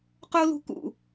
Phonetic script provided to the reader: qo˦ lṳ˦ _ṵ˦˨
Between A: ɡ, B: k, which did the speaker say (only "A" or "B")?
B